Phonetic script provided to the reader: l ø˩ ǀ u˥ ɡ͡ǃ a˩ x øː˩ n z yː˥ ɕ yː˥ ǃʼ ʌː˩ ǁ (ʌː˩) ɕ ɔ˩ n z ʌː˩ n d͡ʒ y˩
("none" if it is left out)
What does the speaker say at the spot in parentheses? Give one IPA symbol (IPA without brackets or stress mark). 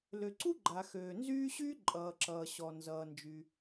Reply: ʌː˩